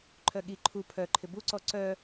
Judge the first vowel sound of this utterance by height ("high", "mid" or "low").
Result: mid